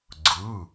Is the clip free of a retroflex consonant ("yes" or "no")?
yes